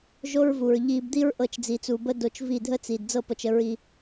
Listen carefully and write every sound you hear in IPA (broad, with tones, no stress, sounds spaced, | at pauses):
ʒ o˦ ɹ v u˨ ɹ ʎ i˧ b d̪ i˦ ɹ ʔ ɤ˧ t͡ʃ d͡z i˨ t͡s u˨ b ə˦ d o˧ t͡ʃ v i˦˨ dʱ ə˦ t͡s i˨ d d͡z ɤ˦˨ p ɤ˨ t͡ʃ ə˧ ɹ i˧